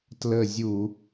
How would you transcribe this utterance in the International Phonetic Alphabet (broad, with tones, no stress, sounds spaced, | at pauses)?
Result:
t l ə˦˨ zʲ u˧˩˧